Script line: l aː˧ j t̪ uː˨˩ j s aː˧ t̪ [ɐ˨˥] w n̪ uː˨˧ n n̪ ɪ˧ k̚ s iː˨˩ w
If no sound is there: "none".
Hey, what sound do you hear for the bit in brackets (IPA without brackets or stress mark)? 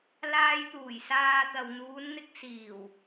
ɐ˨